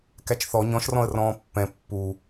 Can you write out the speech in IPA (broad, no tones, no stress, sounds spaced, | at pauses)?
k æ t͡ʃ θ ɔ ɲ ɔ̃ ʃ r ɔ̃ ə̯ r ɔ̃ː pː ɛ̃ pː u